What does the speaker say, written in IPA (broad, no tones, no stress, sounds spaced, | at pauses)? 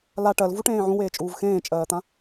l a ʈ ɜ l v u ʈ ẽː ʕ ũ w eː t͡ʃʼ uː v x ẽː t͡ʃʼ ɜː t̪ ã